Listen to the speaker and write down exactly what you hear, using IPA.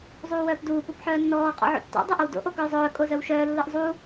zˤ uː w œː p d uː p u p ħ œː nː ɔː qʼ ɔ̰ ʕ o̰ tː ɔ̰ dˤ o ʔ o w d o̰ ʔ o k œː zˤ œː kʼ o z œ w ʃ œː lː ɯ ʔ zˤ u

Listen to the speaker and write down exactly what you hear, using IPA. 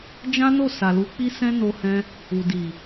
d͡ʒ ã˦ n o˦˨ s a˨ l u˧ k͡p i˦ s ɛ̃˦ n o˧ h ɛ̃˧ | u˨ d i˨

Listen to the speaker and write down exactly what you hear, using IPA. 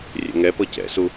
rʲ ɛ̰ ŋ ɛ p ɤ c ɛ̰ s u

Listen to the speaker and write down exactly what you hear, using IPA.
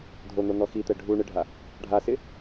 dʱ o n̪ o n̪ ɔ x i t̪ ɛ ɖʱ u ɳ ɪ ɖʱ a | ɖʱ a s ɪ

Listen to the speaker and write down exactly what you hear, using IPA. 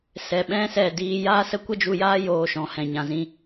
s ɛ˧ ɓ ɛ̃˦ s ɛ˦˨ d iː˧ j a˦ s ə˦ kʷ ə˦ d͡ʒ u˧ j aː˦ j oː˧ ʃ ɔ̃˨ h ɛ̃˨ ɲ ã˨ z ĩ˧

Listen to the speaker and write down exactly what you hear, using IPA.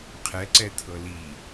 qʰ ɛ ǀ ɛ t̪ʰ ɤ l i

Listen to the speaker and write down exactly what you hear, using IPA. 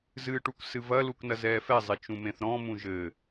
z ɨː ʈ u k s ɨ v ɐ l u k n ɐ z ɛː f ɛ zˤ e t͡ʃ ũ m ẽ θ ɾ ɔ̃ m ũ ʒ ɘ

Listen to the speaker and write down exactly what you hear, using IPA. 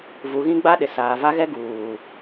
v u˨ ɣ ĩ˦ ɡ͡b a˦ ɗ ɪ˨ s aː˨ v a˦ ɣ ɛ˦ ɡ uː˨

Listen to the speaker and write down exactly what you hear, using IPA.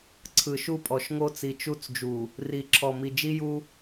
ǀʰ ɯ˨ ʃ u˦ pʼ ɔ˨ ʃ ŋ o˦ t͡s i˨ t͡ʃ u˦˨ t͡s d͡ʒ u˨ | r i˨ ǁʰ ɔ˨ m i˨ d͡ʒ i˦ j u˦

